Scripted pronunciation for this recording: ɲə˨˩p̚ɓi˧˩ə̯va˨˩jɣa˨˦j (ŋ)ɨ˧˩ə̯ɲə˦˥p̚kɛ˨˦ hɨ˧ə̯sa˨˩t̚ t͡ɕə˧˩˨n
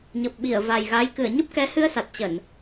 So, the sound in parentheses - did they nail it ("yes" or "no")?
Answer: no